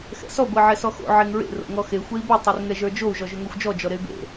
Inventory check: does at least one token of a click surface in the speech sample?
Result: no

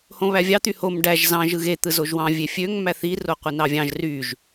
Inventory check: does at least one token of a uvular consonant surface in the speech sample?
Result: yes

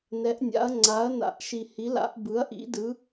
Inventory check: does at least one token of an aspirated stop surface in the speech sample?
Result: no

